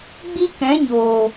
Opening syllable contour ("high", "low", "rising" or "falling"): high